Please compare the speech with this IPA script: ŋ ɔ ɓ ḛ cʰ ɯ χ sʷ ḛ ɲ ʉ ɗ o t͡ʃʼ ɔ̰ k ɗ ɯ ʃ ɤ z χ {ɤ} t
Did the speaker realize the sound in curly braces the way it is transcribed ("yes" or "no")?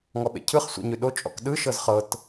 yes